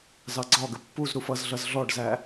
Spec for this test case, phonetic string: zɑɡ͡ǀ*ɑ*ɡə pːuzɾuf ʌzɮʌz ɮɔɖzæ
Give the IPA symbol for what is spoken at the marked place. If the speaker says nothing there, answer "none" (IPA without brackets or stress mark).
ɒ